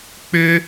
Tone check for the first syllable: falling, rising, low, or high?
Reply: high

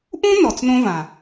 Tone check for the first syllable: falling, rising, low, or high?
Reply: high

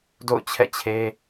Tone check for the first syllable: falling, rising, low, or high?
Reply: falling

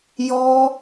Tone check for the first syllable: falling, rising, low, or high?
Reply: high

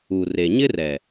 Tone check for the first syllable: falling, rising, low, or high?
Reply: low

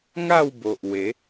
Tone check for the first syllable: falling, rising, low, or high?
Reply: falling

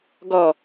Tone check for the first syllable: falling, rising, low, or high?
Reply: low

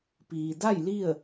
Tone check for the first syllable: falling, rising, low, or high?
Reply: low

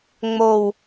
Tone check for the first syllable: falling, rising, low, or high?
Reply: low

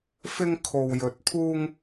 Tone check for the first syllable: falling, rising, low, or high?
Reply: high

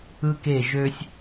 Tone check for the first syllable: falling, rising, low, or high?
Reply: high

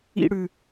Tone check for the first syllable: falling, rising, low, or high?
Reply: high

